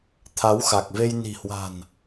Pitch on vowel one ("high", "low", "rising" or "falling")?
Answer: rising